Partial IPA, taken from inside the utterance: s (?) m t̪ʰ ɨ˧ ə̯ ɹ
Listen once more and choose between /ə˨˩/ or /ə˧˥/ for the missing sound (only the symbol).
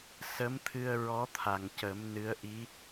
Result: ə˧˥